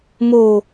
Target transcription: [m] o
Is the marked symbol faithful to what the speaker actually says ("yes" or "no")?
yes